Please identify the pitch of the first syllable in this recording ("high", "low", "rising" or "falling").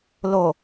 low